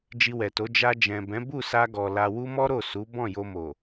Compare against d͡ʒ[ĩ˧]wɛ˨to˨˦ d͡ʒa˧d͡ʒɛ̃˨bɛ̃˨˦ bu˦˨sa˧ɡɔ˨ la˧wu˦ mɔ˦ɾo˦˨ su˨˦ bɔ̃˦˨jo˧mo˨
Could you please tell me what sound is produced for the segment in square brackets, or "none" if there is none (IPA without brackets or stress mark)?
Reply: i˧